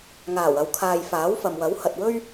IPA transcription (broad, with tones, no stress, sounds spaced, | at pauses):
ŋ aː˨˩ w ɐ˨ w kʰ aː˨ j f aː˨˥ w f ɐ˨ m w ɐ˨˥ w h ɐ˨ t̚ w ɵ˥ ɥ